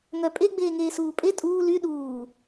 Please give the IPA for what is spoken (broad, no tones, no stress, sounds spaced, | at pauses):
ŋ œ pʼ e ɡ͡b eː ŋ eː s uː pʼ e tʼ uː l y ɗ uː